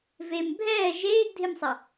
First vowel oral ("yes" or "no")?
yes